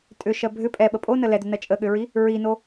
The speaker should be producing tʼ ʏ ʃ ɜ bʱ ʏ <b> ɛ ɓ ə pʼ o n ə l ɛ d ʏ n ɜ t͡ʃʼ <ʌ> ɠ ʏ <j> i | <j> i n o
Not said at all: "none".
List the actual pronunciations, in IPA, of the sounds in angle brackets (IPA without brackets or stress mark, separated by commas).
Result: pʼ, ə, ɹ, ɹ